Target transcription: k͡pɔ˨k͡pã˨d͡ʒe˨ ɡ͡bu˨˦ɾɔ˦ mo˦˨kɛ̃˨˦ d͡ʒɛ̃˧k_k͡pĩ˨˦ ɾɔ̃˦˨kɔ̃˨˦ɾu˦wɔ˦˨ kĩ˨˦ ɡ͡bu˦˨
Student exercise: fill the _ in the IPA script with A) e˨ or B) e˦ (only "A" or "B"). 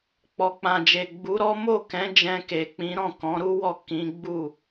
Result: A